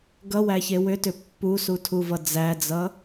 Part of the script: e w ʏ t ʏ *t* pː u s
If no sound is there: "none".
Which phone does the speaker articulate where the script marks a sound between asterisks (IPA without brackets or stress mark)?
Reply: none